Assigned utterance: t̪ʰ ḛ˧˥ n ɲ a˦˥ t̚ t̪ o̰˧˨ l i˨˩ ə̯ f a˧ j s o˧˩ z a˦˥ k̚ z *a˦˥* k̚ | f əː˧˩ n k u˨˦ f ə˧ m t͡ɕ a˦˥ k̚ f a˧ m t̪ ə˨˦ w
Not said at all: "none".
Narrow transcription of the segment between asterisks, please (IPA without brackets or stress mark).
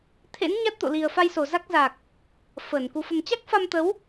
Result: a˨˩